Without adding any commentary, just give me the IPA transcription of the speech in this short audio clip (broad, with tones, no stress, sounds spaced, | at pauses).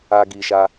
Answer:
a˦ ɡ i˧ ʃ a˦